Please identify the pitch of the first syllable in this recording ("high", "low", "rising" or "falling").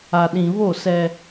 low